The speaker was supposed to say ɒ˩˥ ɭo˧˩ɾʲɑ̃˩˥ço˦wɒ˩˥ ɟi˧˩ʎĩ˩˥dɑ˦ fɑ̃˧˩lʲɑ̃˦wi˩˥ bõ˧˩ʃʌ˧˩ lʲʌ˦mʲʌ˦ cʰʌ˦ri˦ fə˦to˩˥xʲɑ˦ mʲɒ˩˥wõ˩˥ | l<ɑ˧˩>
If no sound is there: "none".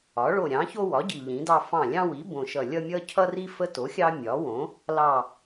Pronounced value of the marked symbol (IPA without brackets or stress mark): ɑ˧˩